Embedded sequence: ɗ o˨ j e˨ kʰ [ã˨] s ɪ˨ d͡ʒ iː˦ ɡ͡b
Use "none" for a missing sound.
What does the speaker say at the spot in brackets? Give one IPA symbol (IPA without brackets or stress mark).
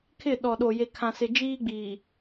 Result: ã˨